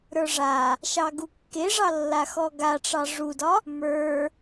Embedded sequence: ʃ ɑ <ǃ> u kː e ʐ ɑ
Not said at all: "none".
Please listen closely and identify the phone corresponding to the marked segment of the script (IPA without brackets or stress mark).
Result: ɡ